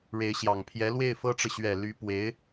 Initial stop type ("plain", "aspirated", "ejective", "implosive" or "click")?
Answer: aspirated